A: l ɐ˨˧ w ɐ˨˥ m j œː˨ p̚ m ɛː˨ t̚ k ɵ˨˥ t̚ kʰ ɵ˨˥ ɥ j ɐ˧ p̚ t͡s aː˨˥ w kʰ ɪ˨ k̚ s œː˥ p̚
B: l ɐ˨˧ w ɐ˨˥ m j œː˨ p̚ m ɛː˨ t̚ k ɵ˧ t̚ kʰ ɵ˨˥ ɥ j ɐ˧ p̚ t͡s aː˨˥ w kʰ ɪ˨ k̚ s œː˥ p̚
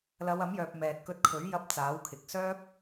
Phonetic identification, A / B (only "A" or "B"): B